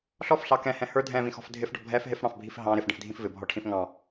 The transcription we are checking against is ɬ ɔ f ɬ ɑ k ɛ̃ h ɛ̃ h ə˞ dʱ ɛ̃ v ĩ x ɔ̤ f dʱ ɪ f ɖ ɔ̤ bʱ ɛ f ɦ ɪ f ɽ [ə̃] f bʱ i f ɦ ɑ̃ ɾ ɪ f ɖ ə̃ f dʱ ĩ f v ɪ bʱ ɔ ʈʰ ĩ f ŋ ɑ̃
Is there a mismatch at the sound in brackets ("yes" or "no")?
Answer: yes